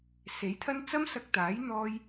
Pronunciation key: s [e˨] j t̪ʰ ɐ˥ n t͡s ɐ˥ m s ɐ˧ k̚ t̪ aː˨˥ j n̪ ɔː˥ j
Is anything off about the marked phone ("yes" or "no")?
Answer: yes